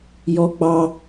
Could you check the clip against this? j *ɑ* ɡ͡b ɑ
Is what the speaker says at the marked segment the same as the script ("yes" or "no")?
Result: no